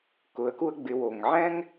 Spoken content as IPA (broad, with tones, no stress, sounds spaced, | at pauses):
k ʊ˩˧ ə̯ k u˧ ə̯ ɡ͡b ɪ˩˧ w o˩ ŋ ʕ ɛ̃˥ ŋ